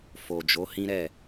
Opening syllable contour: low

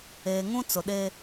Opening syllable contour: low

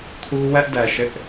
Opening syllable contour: high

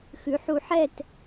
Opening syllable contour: rising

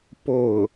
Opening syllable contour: falling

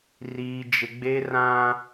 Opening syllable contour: high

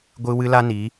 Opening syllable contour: high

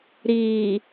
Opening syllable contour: low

